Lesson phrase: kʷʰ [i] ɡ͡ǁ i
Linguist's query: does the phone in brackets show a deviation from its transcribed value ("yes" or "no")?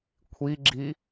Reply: no